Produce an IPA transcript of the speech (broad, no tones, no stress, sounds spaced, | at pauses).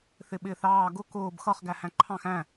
θ ɪ ɓ ɪː θ ɑː ɡ ʊ k ʊː b x ʌ χ ɡ æ h æ̃ ǃʰ ɑ̃ x æ̃